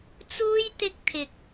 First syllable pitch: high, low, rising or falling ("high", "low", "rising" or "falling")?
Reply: high